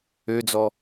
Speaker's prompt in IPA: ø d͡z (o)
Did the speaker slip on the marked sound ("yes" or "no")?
yes